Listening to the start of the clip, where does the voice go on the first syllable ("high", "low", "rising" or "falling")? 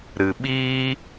low